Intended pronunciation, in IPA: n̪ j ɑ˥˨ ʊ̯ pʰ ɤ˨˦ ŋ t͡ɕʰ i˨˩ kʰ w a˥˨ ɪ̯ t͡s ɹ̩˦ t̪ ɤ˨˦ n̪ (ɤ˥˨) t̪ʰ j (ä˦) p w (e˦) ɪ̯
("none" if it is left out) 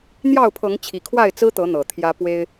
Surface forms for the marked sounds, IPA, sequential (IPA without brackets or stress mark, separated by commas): ɤ˨˩, ä˦, e˦